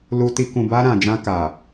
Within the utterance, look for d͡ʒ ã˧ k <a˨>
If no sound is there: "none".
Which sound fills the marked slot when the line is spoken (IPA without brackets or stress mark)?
a˨